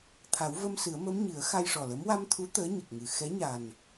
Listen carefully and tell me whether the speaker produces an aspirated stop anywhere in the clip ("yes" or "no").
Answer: yes